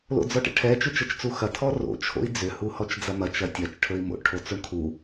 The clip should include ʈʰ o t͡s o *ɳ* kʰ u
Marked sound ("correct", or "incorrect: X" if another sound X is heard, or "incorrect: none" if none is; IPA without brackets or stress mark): correct